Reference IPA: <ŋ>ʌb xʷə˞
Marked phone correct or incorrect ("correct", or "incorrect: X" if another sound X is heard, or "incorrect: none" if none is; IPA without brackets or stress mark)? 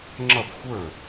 incorrect: ŋ͡ǁ